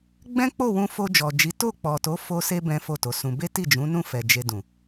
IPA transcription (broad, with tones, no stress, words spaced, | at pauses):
ɡ͡bɛ̃˦k͡po˦˨ wũ˧fo˧ d͡ʒɔ˨d͡ʒi˨˦ to˦˨k͡pɔ˨to˨˦ fo˧se˧ bɛ̃˦fo˦˨to˨˦sũ˧ be˦ti˦˨d͡ʒũ˨˦nũ˦˨ fɛ˨d͡ʒe˧dũ˨